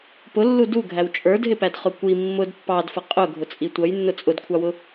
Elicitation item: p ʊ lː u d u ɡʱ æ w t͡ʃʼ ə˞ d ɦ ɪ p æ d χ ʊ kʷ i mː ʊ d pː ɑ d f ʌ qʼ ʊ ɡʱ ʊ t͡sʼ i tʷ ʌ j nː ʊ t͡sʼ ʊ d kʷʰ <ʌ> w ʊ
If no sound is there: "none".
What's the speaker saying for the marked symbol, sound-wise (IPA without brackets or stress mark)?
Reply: ɑ